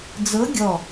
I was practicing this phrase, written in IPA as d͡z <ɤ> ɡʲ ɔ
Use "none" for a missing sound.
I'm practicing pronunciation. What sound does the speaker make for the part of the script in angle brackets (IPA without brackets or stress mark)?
ɤ